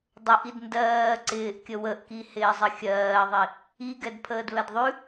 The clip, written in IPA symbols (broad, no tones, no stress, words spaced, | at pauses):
dˤəʔid ndɜː ǀɪːʔkʲə wəʔkihɪːzˤɘ xʲɜːðˤi | iɡɛdpʰəːd βɛdðˤʉ